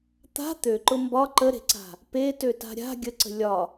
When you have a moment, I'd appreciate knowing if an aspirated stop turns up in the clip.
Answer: no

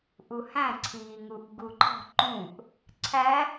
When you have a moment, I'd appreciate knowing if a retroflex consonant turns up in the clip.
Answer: no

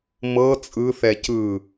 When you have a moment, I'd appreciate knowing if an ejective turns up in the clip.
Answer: yes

